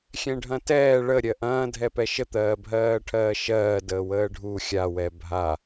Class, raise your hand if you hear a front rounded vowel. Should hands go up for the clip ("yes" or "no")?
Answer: no